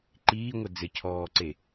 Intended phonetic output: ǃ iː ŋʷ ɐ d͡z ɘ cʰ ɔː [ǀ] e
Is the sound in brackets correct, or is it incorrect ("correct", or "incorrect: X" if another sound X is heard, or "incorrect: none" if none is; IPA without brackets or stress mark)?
correct